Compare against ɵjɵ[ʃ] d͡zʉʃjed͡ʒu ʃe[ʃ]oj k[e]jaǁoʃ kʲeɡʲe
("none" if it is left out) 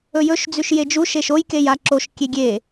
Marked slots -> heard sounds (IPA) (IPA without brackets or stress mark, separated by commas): ʃ, ʃ, e